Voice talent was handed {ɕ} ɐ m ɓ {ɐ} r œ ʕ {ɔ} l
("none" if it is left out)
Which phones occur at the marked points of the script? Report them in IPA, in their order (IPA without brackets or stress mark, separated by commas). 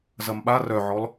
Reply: z, a, ɔ